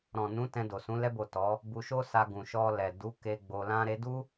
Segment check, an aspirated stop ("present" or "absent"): absent